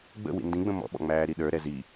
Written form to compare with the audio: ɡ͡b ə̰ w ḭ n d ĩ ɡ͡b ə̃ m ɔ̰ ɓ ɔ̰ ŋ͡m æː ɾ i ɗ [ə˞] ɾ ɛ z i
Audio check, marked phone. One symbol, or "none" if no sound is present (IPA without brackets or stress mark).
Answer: ə˞